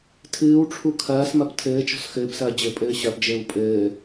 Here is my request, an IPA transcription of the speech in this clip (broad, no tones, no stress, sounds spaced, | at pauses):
tʰ ɨː w ʈ͡ʂʰ u kʰ ɐː s m ɐ p tʰ ɘː t͡ʃ ɔ̤ s x ɘː p s ɐː d͡ʑ ɘ pʼ ɘː ɕ ɐ p d͡ʒ ɘː w pʼ ɘː